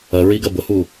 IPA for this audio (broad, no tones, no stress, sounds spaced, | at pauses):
ɐ ɹ i ɡ ɐ b ʊ h u